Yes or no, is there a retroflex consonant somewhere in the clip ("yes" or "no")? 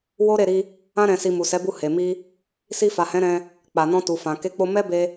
no